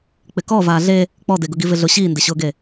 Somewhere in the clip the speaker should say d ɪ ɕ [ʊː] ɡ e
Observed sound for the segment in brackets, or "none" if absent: ʊː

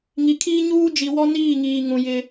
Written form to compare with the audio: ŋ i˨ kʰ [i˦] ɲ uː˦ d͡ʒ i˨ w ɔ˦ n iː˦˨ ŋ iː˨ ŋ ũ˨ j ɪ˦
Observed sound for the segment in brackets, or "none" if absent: iː˦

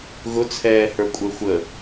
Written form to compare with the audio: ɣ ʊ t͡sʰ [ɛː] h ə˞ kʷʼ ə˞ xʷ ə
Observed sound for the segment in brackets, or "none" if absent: ɛː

